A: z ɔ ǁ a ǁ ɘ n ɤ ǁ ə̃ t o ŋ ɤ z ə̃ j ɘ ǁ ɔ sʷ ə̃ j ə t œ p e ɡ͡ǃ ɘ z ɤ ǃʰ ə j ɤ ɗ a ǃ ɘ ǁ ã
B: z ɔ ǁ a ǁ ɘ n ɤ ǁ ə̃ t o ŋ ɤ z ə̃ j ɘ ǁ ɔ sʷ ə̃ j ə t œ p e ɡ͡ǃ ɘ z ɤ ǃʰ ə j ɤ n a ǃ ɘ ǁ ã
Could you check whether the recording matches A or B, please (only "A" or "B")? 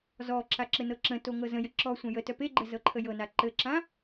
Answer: B